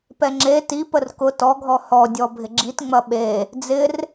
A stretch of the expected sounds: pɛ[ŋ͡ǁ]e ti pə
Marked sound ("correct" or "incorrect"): correct